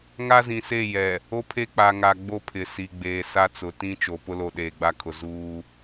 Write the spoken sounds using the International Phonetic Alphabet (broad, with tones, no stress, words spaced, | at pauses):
ŋa˦zĩ˨se˦˨jɛ˨ | o˦pʰe˦k͡pa˨ŋa˨ ɡ͡bo˦pʰɪ˨si˨ ɡ͡beː˨sa˦t͡sʊ˨ tĩ˦t͡ʃo˨pʊ˦ lo˨ɗeː˨ɡ͡ba˦kʰʊ˨ zuː˦